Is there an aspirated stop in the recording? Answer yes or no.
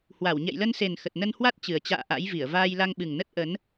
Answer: no